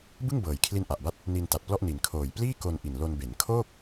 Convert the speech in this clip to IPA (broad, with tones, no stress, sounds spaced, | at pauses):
b ɯ˥˩ ŋ b ɤː˨˩ j kʰ l i˦˥ n ʔ a˨˩ ʔ b a˥˩ t̚ | n i˧ n t a˨˩ t̚ p l ɔ˥˩ ʔ n i˨˩ n kʰ oː˨˩ j p l iː˥˩ k o˧ n ʔ i˨˩ n l o˧ n b e˩˦ n kʰ oː˥˩ k̚